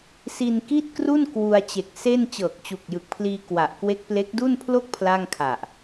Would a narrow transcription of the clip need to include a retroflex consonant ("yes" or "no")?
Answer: no